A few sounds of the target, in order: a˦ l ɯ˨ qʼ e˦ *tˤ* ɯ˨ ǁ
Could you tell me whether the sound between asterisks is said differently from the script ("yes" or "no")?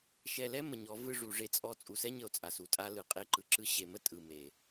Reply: yes